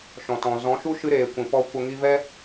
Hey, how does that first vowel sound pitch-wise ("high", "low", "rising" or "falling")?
low